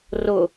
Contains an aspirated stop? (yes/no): no